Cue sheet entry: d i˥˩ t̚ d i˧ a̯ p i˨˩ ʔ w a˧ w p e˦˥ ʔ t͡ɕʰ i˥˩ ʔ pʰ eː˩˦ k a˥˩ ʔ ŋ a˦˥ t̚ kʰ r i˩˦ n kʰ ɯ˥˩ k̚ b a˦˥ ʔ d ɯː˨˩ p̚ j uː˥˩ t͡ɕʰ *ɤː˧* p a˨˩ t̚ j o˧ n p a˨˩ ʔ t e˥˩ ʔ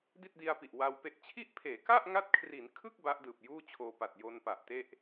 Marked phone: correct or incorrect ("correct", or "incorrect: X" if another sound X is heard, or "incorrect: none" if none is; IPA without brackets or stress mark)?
incorrect: oː˧